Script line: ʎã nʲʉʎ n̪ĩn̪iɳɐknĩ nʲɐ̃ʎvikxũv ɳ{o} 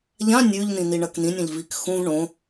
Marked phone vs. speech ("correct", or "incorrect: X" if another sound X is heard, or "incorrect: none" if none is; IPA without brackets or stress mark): incorrect: õ